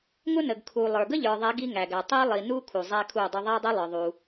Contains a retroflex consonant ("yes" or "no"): no